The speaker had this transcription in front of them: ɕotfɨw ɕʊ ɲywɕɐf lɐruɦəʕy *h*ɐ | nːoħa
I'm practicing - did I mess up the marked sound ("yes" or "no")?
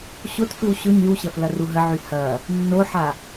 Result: no